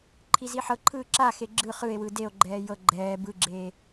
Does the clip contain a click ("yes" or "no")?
yes